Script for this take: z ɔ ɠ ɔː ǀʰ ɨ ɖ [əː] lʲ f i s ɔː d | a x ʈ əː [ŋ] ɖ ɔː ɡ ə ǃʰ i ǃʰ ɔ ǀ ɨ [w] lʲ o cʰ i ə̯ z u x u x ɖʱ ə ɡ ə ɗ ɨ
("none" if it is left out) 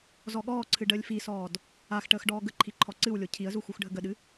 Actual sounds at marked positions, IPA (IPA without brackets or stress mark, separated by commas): əː, x, w